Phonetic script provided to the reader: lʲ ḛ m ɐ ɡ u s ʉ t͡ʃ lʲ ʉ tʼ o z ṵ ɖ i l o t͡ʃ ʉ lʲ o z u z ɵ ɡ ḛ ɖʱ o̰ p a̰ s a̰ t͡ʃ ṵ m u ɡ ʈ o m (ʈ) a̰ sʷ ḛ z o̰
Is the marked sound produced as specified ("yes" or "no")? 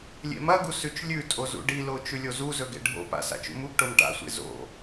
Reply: yes